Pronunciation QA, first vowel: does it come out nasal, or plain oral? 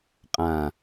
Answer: nasal